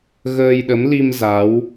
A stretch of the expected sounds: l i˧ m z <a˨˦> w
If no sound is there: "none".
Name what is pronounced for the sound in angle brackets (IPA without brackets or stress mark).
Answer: a˨˦